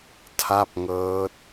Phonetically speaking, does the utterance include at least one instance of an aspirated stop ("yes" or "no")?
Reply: yes